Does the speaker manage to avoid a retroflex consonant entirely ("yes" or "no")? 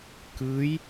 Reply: yes